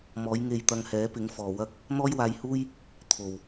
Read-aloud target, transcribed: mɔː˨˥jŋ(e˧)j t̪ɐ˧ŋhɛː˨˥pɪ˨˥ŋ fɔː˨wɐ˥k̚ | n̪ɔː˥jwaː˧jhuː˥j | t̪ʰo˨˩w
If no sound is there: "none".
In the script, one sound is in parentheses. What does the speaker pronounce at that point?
e˧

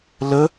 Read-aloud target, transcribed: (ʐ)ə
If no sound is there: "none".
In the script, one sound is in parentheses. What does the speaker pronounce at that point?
l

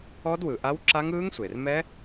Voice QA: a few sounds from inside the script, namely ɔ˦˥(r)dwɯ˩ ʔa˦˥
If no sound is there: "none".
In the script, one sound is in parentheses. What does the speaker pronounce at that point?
none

